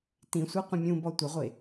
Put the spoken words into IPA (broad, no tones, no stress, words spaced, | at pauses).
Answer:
tĩsʷi qʷə̃mʲũbɔ tʷəʁʷe